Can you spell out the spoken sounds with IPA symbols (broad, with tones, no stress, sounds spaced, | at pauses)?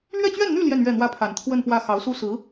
l ɥ ɛ˥˧ t͡ɕ ɥ ɛ˥˧ n n̪ y˥˧ l j ɛ˥˧ n ɥ ɛ˥˩ n̪ w ä˥ pʰ a˨˩ n t̪ʰ w ə˥˧ n p w ä˥˩ x ɑ˧˥ ʊ̯ s u˥ s ɹ̩˧˥